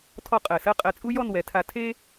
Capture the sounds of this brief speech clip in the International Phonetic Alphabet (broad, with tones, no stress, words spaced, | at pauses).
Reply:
tʰɔ˥˧qʼɜ˧˩sɜ˥ qʼɜ˧t͡sʼu˥ jɔ˥˧nwɛ˩˧tʰa˧ tʰe˥